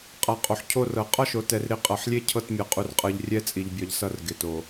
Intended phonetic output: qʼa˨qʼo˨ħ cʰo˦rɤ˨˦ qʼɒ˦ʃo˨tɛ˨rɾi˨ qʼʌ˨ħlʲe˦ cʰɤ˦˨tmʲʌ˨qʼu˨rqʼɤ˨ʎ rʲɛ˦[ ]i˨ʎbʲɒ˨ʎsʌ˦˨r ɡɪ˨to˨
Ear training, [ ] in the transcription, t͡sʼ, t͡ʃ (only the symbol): t͡sʼ